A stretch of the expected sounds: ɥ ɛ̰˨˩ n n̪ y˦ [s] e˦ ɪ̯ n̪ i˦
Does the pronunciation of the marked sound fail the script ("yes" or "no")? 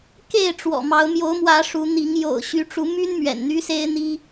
no